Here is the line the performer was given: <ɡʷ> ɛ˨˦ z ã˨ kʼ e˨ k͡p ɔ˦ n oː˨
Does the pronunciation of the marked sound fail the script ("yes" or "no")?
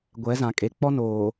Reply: no